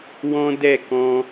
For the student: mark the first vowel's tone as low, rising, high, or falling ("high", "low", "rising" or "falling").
high